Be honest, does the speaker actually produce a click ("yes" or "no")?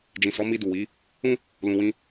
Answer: no